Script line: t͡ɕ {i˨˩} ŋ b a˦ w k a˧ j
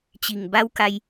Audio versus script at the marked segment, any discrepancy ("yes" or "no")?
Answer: no